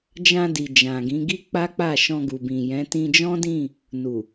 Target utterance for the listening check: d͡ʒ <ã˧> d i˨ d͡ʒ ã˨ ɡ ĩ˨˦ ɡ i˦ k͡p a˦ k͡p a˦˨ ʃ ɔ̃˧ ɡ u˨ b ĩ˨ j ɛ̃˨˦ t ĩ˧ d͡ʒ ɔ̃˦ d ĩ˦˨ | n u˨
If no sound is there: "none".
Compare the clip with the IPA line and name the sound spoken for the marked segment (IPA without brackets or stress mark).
ã˧